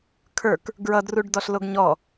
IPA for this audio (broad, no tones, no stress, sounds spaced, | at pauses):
kʰ ə˞ k | ɡ ɹ ʌ d r u ɖ d ɔ ɬ l o ɡ ɲ ɔ